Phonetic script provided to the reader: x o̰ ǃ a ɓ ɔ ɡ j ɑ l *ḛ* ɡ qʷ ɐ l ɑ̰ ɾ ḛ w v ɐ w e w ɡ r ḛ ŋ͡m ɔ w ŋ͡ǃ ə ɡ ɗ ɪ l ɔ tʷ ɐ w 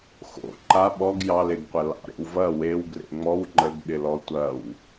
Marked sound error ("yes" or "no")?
yes